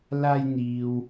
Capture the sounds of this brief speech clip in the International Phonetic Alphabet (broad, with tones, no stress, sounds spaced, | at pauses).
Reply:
l aː˧ j n̪ iː˨ w